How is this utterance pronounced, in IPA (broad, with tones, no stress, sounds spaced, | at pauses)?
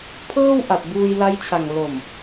pʰ ɤː˥˩ w ʔ a˨˩ t̚ b uː˧ j l a˦˥ j t͡ɕʰ a˨˩ ŋ l o˨˩ m